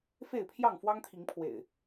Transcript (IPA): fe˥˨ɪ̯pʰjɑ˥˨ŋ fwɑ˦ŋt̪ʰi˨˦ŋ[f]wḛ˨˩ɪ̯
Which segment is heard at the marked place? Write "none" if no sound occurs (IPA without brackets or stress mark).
pʰ